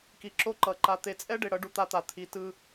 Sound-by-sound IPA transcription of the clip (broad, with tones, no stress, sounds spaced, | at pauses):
k i˨ ǁ o˦ ǃ ʌ˨ ǃ a˨ t̪ e˨ t͡sʼ ɛ˦ ɖ e˨ ɽ ʌ˨˦ ɖ u˨ t̪ a˦ t̪ a˨ t̪ʰ i˨ t ɯ˦